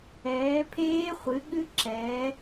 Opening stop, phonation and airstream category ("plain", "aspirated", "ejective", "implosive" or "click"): aspirated